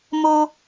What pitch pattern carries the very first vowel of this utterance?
high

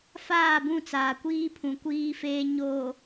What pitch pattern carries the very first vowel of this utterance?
falling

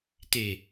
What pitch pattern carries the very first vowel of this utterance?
low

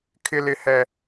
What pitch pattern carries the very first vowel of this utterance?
high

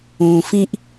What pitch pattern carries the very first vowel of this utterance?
low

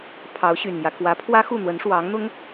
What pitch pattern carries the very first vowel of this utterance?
rising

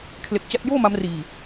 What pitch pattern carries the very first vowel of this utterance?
low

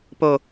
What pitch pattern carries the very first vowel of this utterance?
low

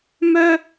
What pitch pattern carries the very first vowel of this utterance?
high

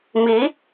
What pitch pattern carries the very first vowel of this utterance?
rising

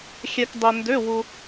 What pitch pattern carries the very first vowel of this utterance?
low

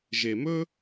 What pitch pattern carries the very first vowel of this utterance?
low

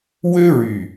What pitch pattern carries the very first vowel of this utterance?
high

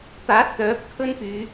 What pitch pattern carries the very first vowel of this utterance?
rising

